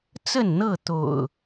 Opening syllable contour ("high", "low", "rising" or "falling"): falling